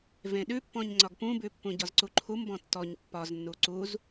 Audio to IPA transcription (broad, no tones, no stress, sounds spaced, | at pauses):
v ẽ ɗ ʉ pː ɔ̃ ɲ ŋ͡ǀ ɒ ɡ p ũ b ʉ pː ũ ɟ ɒ z ǀ u ǃʰ u m b ɔ̃ tː ɔ ɲ pː ɒ z nː u ǀ u z